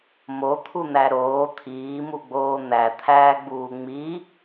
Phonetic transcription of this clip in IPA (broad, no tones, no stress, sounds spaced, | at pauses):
m o t̪ʰ u n̪ æ ɾ oː t̪ʰ iː m u ɡ͡b oː n̪ æ t̪ʰ æː ɡ͡b uː ŋ͡m i